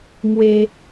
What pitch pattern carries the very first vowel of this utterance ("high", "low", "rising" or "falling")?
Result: high